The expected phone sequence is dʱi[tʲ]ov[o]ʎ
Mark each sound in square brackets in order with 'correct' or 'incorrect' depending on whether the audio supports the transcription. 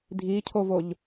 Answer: incorrect, correct

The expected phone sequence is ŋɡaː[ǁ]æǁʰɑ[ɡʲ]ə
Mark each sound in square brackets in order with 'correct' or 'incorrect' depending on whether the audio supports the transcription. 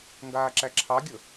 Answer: correct, correct

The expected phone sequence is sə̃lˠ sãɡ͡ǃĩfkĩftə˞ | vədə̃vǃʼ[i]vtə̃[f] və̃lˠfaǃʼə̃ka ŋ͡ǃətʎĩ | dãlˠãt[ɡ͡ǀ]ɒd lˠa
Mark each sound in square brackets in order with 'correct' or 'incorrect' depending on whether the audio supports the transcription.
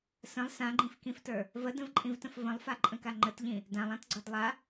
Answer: incorrect, correct, correct

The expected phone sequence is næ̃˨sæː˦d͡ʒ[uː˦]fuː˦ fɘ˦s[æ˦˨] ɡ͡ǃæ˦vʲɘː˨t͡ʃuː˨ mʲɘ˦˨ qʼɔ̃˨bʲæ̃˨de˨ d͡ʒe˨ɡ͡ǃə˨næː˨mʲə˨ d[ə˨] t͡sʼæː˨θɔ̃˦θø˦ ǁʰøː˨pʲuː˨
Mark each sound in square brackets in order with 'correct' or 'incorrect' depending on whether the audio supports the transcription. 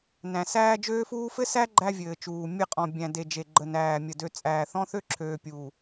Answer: incorrect, incorrect, incorrect

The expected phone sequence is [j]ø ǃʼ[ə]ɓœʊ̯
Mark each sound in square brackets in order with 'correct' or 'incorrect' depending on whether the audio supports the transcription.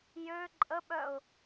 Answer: correct, correct

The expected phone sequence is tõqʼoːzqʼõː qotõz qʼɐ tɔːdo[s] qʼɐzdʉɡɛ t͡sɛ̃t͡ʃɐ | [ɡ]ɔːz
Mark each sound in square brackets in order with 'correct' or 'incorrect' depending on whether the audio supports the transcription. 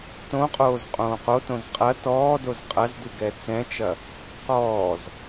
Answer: incorrect, incorrect

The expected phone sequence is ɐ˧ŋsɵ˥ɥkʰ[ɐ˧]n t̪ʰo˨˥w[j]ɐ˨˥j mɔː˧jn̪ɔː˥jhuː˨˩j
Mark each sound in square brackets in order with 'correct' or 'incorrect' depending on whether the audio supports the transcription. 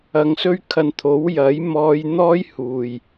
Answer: correct, correct

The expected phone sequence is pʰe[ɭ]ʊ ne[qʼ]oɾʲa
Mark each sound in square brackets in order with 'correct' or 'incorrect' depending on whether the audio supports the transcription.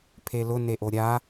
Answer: incorrect, incorrect

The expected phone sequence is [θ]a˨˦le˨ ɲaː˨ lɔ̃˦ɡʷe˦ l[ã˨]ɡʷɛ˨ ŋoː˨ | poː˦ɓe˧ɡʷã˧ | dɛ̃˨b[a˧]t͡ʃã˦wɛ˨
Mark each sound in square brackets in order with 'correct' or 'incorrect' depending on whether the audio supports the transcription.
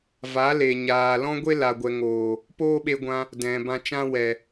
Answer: incorrect, incorrect, incorrect

